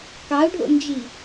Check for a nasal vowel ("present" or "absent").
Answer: absent